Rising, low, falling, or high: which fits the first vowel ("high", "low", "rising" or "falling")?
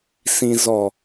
low